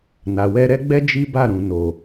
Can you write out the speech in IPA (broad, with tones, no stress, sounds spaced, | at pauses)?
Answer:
n a˨ w ɛ˧ ɾ ɛ˦ ɡ͡b ɛ˦ d͡ʒ i˦ b a˦˨ ɾ ũ˨ n o˨